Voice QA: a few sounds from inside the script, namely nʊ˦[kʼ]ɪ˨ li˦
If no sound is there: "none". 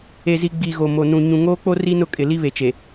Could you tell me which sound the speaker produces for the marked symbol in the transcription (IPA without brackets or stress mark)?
kʼ